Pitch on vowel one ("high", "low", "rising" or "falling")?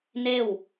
falling